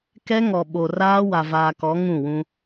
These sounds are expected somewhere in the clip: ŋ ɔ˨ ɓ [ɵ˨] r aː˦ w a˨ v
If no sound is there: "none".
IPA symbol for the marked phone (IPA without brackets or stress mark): o˨